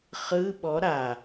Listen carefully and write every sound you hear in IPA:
χ ɯ ɓ ɔ ɾ a

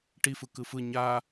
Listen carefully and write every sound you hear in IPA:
ʈ i f ɯ k ɯ f ɯ ɲ a

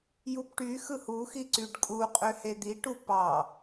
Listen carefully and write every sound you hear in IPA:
j u p ʈ y x ɯ h u x i ǀ y ɖ kʼ u qʼ ø h e d̪ i ʈ u p ɑ

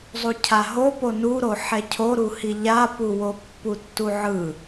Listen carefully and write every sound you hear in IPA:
zˤ u cʰ a ɦ o p o n u ɾ o ħ ɛ cʰ o ɾ u h i ʎ a p u w o pː u tː u ʕ ɯ

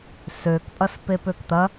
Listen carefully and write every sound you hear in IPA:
s ø k pʼ ɐ s p e p ø k t̪ ɐ

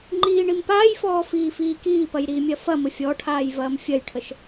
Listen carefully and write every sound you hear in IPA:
ŋ͡ǃ iː ɳ i m p aː j f ɔː f iː f iː k iː p ɐ j ɾ iː mʲ ɐ f ɐ m ə fʲ ɔ ʈʰ aː j v ɐː m fʲ ɐ j ʈʰ ə ʃ

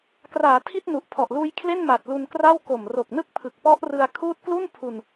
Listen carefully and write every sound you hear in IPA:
k r aː˩˦ tʰ i˥˩ t̚ n u˨˩ ʔ pʰ ɔ˨˩ ʔ l uː˦˥ j kʰ l e˥˩ n m a˨˩ t̚ l u˧ n k r a˥˩ w k o˨˩ m r o˨˩ k̚ n ɯ˦˥ k̚ pʰ ɯ˨˩ k̚ p ɔ˦˥ ʔ r ɯ˧ a̯ kʰ uː˦˥ t̚ k l u˥˩ n pʰ u˧ n

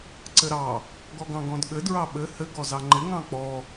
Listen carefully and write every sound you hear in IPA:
ǀ ɘ ɾ ɑ | ɡ ɔ ɡ ɑ̃ ɡ ɔ̃ d ɠ ɘ d ɹ ɑ ɓ ɘ h ɘ ɡ ɔ z ɑ ŋ͡ǃ ɪ ŋ ɑ̃ k͡p ɔ

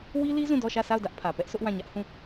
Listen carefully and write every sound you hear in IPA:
w i˦ l i˦ z ũ˦˨ d ɔ˦˨ ʃ ä˦˨ sʰ a˦˨ ʊ̯ d ä˦ ʔ pʰ ä˨ p ɛ˦ ʔ s ʊ˦ ʔ w ã˦˨ ɲ ä˦ ʔ h ũ˦˨

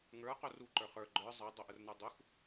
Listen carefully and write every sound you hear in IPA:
ŋ ə˞ q o r u ǃ ə˞ χ ə˞ ɡ͡ǃ ə˞ zˤ ə˞ dˤ o ʔ ə r n ə˞ dˤ u x

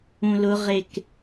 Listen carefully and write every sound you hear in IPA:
ũ l ʊ ʁ e k

